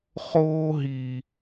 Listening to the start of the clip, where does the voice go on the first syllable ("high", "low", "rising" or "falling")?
high